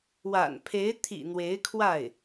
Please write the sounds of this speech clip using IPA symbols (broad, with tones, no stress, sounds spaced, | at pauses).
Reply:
w a̰˨˩ n pʰ e˧˥ ɪ̯ t̪ʰ ḭ˨˩ n̪ w e˧˥ ɪ̯ kʰ w a˥˩ ɪ̯